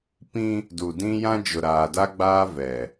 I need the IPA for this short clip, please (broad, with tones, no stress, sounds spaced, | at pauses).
p ĩ˦ | d u˨ d ĩ˦ j ã˦ d͡ʒ ʊ˨ ɾ aː˨ d a˦ ɡ͡b aː˦ v ɛ˨